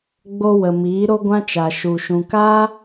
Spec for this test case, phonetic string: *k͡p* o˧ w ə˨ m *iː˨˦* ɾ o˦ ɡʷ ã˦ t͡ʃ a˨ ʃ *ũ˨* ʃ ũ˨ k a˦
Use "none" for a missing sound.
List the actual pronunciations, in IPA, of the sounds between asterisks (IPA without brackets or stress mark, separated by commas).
ɡ͡b, iː˨˦, u˨